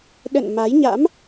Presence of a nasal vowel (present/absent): absent